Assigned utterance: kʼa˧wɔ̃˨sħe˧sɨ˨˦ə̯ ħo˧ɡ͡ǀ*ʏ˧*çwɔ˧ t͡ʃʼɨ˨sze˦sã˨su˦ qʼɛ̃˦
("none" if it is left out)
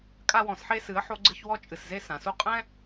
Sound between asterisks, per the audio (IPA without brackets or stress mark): ɨ˧